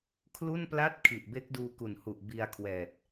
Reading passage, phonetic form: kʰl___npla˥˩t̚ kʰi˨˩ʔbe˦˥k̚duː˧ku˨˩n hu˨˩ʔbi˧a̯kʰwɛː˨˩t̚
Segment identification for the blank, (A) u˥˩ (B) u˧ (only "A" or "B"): A